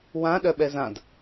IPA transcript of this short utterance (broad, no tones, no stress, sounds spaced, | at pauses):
w ã ɗ œ ɓ ɛ z ã d